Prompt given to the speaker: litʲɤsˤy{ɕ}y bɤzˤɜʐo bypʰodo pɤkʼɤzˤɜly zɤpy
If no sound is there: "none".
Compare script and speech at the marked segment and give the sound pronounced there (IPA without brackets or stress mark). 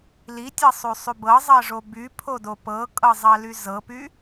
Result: sˤ